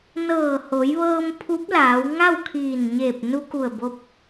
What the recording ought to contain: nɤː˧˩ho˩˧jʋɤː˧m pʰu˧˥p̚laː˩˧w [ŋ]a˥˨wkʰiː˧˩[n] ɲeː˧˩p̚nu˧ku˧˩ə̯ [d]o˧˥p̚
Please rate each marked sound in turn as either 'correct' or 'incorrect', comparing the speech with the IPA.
correct, correct, incorrect: b

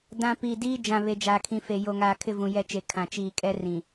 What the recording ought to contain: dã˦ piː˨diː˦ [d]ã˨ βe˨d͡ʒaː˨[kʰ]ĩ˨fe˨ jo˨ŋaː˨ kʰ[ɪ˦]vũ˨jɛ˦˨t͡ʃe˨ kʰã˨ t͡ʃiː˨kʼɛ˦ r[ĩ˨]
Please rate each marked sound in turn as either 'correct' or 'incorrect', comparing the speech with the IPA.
incorrect: d͡ʒ, correct, correct, correct

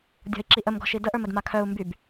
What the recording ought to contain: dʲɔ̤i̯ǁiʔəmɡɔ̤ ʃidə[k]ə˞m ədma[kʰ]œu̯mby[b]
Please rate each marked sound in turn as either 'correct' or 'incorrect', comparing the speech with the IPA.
incorrect: ʔ, correct, correct

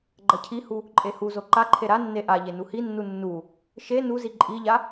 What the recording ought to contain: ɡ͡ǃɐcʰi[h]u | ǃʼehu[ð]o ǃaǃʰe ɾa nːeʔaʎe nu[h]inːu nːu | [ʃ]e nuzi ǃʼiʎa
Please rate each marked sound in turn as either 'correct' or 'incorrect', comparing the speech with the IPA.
correct, incorrect: z, correct, correct

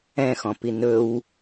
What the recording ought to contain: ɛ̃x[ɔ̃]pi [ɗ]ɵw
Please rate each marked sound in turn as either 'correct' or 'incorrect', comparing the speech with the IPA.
correct, incorrect: n

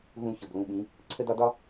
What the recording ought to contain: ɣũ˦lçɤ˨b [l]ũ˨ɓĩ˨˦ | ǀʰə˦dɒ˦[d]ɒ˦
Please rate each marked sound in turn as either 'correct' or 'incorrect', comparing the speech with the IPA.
correct, correct

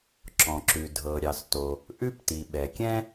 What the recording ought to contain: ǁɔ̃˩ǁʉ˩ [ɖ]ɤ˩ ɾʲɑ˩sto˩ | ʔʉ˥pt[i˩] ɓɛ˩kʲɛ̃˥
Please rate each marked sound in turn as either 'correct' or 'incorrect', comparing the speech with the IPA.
incorrect: dʱ, correct

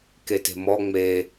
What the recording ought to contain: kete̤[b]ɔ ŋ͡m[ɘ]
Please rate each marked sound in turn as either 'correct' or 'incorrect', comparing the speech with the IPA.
incorrect: m, incorrect: e

